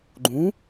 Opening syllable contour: rising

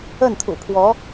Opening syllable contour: falling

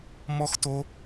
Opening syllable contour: high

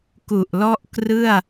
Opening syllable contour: low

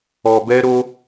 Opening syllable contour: low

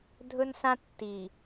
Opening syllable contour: high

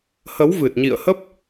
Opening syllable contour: rising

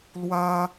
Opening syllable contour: high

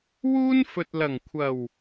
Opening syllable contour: high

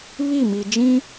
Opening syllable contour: falling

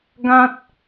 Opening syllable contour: high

